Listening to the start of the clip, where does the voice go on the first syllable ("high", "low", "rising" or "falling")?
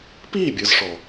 falling